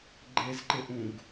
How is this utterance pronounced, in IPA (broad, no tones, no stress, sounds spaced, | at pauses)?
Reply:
ɡ͡ǃ e z ǃ ɪ ʔ ũ ɡ